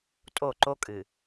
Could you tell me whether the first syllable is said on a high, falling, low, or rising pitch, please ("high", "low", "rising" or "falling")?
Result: falling